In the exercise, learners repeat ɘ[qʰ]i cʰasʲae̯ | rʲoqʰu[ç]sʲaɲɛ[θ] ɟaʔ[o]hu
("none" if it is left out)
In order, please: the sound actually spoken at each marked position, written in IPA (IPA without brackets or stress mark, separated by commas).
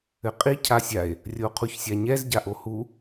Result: qʼ, ç, z, o